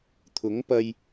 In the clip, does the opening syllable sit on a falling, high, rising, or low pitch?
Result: rising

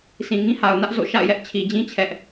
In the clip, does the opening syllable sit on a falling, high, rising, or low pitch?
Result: low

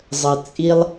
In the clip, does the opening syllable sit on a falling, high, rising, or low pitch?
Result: low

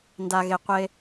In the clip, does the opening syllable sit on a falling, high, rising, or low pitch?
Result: low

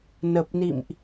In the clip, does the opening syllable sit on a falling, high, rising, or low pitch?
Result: low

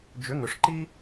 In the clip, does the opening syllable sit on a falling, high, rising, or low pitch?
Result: rising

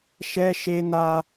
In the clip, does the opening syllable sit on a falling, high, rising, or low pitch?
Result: high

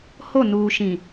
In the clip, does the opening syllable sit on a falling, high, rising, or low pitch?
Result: falling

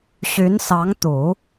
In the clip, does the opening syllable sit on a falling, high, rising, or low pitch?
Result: rising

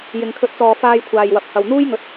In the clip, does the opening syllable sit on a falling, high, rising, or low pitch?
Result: low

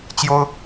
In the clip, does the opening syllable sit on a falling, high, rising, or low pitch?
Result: high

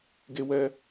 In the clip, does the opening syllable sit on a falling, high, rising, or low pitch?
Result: high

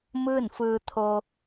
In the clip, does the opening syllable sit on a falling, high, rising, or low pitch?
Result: falling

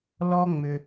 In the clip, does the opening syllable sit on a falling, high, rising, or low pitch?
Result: high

